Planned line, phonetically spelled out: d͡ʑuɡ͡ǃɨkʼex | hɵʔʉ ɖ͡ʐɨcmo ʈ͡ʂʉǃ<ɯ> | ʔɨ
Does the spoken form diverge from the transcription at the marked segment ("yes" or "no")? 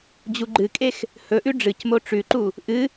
yes